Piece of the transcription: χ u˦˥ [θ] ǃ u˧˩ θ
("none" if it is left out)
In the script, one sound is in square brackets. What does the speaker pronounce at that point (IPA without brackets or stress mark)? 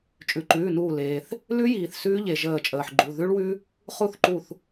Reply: θ